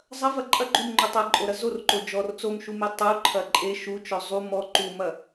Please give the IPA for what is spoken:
zˤ ɐ v ɐ ǃʼ ɐ ɡ͡ǃ u m ŋ͡ǃ u tˤ ɐ ǃʼ o ɾ ɐ z o r ǃ o d͡ʒ ɔ r t͡s o m ʃ u m e tˤ u ǃʰ ɐ ǃʼ e ʃ u t͡ʃ ɔ zˤ u m ɔ ǃ u m ɐ

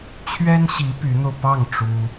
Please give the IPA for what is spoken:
t͡ɕʰ ɥ ɛ˥ n ɕ i˧˥ p y˧˥ n̪ o˧ ʊ̯ p ɑ˥˩ ŋ ʈ͡ʂ u˥

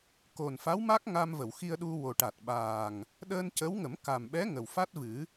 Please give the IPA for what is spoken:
k o˨˩ n f a˧˥ w m a˦˥ k̚ ŋ a˧ m v ə˨˩˨ w x i˧ ə̯ ɗ u˧ w o˨˩ ʈ a˨˩ t̚ ɓ aː˨˩ ŋ | ɗ əː˧ n c ə˧˥ w ŋ ə˨˩˦ m k a˨˩ m ɓ ɛ˧˥ ŋ ə˨˩ w f a˦˥ t̚ v ɨ˨˩˦

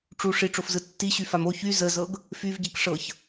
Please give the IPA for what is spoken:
ʈ͡ʂ u ʂ i ʈ͡ʂ o f z ɯ tː i ɕ y f a m o ç y z ə z ɤ ɡ | f y v ɟ i k ʂ ɤ ç

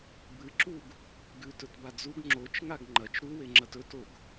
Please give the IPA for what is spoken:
b ɨ ǁ u ɡ | ɡ ʉ t ɵ t b a d͡z u ɡ ŋ͡ǁ o t͡ʃ ŋ a ɡ ŋ͡ǃ ɐ t͡ʃ ɾ u w e ŋ͡ǁ ɐ t ɵ t o ɡ

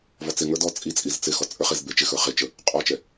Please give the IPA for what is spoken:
v ɔ t͡s ɪ ŋ ə˞ d ɔ t͡sʼ i t͡sʼ i z t͡s ɪ x ɔ t͡sʼ ə˞ χ e z b e t͡ʃ ɪ x ə˞ χ e t͡ʃ ə | qʼ ɔ t͡ʃ ɛ

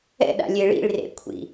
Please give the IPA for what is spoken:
ɛ̰ ɗ a̰ lʲ e ɭ ḭ ɭ r ḛ kʷʰ ḭ

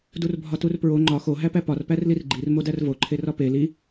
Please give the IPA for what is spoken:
d u r bʱ ɒ t u r p ɹ o ŋ͡ǃ ɒ x o ɦ æ p æ p ɒ r p æ r l i r ɡ͡ǃ i r m o d æ r v o ǃʰ e r ɒ p e l i

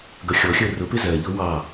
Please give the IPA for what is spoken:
ɡ ʌ xʲ ɔ xʲ əː r ʊ p ɪ z ɜ ʎ ʊː w ɑ

